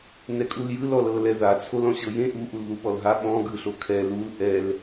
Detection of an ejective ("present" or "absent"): present